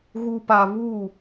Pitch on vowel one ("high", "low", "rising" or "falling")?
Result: low